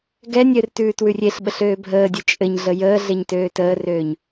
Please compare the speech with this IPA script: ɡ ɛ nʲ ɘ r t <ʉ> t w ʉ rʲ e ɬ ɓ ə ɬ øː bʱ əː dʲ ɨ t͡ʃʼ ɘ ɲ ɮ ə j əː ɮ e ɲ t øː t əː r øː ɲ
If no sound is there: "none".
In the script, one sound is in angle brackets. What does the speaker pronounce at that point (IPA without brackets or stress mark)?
ʉː